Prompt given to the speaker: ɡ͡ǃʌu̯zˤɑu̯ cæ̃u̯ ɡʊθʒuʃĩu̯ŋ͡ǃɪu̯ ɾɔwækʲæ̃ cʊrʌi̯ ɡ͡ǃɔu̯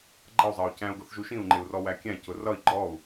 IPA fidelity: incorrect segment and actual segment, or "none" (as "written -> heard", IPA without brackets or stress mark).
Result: ɾ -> r